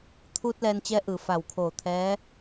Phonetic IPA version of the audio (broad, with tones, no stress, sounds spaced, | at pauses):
t̪ʰ uː˧ t̚ l ɛː˧ n t͡ɕ ɛː˧˥ ʔ ɯː˩ f a˧˩ w kʰ oː˧˩ t̪ʰ ɛː˧˥